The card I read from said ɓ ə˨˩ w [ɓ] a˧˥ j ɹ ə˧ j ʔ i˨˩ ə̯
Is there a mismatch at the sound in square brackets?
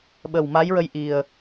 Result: yes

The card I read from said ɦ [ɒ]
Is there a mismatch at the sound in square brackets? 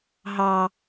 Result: yes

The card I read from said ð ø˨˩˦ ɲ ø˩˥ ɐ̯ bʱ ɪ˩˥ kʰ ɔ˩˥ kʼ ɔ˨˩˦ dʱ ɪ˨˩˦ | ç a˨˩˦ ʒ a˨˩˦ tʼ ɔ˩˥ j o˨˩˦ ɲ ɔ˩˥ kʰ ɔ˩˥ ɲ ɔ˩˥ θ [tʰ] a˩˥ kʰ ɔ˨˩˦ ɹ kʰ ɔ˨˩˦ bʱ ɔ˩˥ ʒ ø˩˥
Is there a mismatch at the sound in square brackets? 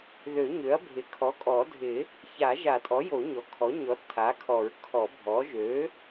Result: no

